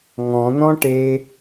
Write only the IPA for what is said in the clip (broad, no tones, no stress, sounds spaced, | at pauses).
ŋ ɔ̃ n̪ ɔ̃ ʈ e